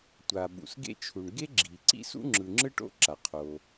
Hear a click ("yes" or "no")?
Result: yes